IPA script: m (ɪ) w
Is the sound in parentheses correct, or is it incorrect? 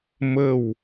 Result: incorrect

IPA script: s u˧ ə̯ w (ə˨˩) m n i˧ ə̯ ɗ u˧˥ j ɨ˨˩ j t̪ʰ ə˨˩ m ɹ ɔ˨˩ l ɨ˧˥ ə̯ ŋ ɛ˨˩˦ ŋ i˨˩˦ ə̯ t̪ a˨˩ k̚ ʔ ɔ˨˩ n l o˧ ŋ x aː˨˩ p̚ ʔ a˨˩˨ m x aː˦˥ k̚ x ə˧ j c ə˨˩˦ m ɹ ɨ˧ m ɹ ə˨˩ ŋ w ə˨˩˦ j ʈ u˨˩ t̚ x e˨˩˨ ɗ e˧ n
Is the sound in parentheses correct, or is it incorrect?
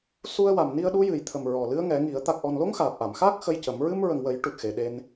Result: incorrect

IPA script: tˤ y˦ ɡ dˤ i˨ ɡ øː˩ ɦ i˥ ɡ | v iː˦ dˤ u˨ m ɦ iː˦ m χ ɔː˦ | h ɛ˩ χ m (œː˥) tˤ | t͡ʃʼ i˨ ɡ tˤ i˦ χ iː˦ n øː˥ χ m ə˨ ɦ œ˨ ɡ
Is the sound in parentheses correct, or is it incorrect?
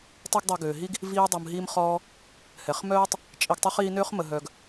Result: correct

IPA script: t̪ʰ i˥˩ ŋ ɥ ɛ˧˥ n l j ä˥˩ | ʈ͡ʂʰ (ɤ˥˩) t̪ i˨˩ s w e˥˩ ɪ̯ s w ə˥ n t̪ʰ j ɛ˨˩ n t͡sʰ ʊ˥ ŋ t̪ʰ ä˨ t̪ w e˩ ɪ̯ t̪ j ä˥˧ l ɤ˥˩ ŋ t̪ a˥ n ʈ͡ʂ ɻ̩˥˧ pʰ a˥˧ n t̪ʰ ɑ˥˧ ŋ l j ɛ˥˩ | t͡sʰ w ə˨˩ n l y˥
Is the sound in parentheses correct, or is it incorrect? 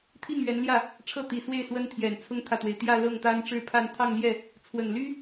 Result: correct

